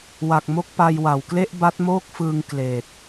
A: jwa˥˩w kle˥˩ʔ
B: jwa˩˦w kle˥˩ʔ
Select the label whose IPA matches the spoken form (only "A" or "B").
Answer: B